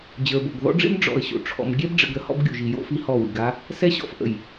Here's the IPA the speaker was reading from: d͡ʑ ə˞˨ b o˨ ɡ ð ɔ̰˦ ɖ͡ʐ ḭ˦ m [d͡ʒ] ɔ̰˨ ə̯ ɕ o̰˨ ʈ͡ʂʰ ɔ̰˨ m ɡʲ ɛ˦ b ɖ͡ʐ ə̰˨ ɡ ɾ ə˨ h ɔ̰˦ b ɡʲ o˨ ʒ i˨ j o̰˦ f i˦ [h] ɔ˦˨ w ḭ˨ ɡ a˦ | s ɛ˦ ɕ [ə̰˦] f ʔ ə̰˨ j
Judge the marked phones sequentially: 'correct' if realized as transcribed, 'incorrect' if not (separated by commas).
incorrect, correct, incorrect